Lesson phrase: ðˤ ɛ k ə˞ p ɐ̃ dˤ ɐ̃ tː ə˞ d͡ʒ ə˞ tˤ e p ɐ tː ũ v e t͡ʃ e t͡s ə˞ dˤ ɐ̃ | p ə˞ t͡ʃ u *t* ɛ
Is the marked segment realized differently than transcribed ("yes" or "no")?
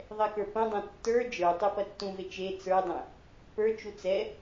yes